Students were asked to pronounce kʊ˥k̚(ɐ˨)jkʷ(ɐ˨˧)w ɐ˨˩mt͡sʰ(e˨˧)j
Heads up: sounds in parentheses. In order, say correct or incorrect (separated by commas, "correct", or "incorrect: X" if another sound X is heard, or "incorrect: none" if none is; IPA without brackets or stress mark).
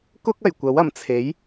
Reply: incorrect: ɐ˨˩, incorrect: ɐ˨˥, incorrect: e˨˥